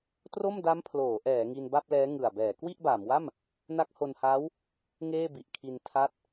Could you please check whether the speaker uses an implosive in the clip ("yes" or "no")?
no